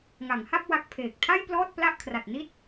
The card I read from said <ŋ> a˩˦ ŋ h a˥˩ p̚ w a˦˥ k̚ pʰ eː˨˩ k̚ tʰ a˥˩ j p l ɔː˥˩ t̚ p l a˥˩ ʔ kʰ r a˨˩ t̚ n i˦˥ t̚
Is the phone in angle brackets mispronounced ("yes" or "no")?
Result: no